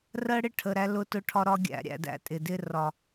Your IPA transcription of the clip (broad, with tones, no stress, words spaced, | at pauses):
rɜ˦ɽɪ˦ ʈʰə˨ɾæ˧ lʊ˧tʊ˧ʈʰɒ˧ɾɒ˧ ɡʲæ̰˨ɾʲæ̰˨ dæ̰˦˨tʼɪ˨dɪ˦ rɒ˨